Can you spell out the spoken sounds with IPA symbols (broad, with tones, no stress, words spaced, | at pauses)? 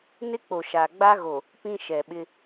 nɪ˦k͡po˨ ʃa˨ɡ͡ba˦ɣo˨ | pĩ˦ ʃɛ˨ɓɪ˦